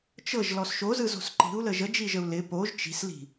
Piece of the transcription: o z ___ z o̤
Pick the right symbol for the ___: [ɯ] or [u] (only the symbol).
ɯ